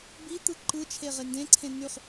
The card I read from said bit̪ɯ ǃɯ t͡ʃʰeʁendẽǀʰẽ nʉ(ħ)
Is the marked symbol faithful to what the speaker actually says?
no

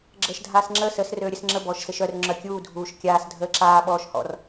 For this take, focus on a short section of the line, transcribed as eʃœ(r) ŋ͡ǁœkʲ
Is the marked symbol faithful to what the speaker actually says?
yes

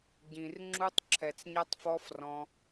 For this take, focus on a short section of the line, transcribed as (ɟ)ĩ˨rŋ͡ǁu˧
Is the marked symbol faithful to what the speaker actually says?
yes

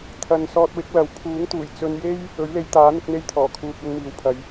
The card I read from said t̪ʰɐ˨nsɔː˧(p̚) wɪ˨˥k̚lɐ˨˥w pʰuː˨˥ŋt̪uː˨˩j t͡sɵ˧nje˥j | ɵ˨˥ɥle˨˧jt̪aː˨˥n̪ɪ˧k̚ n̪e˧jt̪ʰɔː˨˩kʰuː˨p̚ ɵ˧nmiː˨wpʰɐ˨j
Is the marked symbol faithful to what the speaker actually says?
no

